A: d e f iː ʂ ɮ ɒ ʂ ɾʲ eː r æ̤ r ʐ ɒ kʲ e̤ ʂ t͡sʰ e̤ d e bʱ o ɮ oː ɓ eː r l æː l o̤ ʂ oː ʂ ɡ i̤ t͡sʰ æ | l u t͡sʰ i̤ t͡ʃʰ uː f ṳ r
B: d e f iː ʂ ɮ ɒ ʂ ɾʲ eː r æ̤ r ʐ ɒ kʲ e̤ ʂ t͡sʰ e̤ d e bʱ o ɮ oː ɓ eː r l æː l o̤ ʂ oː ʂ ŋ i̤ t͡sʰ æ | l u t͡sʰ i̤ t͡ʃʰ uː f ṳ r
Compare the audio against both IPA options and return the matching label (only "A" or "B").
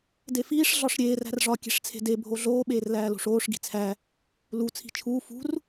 A